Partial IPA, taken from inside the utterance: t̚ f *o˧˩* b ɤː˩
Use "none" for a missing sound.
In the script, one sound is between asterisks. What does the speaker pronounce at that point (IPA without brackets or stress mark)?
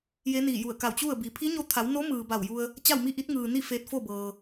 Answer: o˥˨